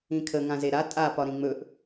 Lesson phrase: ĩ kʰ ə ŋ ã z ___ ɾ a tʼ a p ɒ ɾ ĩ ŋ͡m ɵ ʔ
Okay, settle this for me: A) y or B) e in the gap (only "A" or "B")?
B